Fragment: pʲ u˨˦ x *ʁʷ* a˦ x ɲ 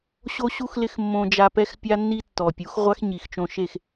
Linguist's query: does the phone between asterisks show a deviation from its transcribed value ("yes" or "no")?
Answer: no